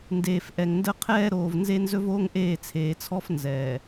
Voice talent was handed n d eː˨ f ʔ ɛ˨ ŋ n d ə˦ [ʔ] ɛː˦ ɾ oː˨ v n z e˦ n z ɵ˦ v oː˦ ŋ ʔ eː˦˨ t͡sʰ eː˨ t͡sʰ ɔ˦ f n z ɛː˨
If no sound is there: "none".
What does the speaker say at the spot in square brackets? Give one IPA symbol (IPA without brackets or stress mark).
qʰ